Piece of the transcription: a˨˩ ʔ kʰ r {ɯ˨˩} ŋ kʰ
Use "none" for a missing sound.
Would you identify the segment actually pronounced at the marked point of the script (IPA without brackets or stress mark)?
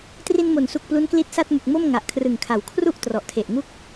ɯ˨˩